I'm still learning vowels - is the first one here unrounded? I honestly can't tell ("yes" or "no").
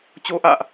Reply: no